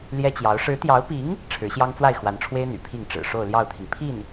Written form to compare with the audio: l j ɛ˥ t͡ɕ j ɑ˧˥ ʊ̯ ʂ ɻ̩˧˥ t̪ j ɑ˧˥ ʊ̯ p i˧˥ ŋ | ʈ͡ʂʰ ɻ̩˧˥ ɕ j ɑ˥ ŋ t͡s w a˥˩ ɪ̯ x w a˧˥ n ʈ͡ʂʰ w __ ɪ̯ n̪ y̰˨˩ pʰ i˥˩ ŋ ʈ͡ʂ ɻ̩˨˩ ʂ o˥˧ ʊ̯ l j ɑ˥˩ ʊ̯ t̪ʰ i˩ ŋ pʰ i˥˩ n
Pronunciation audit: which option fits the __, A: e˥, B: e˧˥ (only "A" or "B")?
A